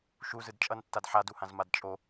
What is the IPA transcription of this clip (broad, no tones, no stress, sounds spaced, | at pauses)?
ʃ u z ɯ d t͡ʃʼ ʌ n tː a d ħ a d u h ã z m a d t͡ʃʼ o